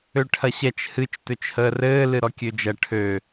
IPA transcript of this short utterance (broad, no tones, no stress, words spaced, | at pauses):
øʈʰɐɕɛt͡ʃ hɨt͡ʃ tøt͡ʃhəːrɘː lɨɾɔkʲød͡ʒɐ ʈʰø